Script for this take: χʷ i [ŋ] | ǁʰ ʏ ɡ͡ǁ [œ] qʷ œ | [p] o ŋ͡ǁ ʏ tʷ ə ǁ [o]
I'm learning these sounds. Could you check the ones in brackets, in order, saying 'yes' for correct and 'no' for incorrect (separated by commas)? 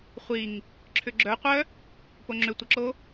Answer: yes, yes, yes, yes